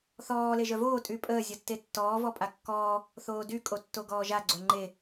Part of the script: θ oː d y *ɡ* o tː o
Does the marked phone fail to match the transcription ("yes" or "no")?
yes